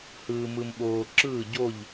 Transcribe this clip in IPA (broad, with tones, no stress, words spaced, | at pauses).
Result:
hɯː˨mɯ˨mɓoː˨ ǁɯː˥˨ɟo˥˨ʎ